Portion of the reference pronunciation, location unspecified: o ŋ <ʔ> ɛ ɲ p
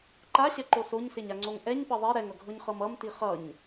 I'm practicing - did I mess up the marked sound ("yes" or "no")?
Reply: no